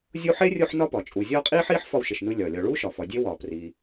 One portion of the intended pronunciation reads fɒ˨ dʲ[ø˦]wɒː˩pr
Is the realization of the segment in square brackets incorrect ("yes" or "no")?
yes